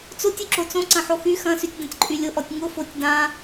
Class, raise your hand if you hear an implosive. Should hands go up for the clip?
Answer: no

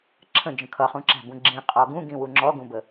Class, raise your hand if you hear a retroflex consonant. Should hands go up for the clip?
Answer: no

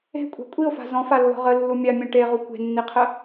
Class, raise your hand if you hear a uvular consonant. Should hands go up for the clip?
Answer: yes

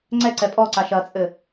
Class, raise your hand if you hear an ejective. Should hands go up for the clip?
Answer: yes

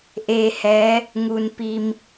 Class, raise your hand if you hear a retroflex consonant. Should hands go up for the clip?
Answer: no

